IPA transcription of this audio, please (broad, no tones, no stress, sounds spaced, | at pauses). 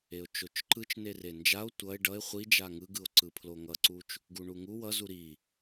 e o̯ t͡ʃ o t͡ʃ ǃ ɯ t͡ʃ n e r e n d͡ʒ a o̯ tʷ ʌ e̯ ɖ ʌ e̯ χʷ i d͡ʒ a ŋ ɯ ɡ ɯ o̯ ǀ ɯ pʰ l o ŋ ʌ ǀ u t͡ʃ | ɡ u ɳ u ŋ u w ʌ z u ɾ i